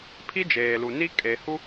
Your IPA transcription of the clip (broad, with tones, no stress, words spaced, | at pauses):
pʰi˦d͡ʒeː˨lu˨ ni˦ kʼe˨hu˦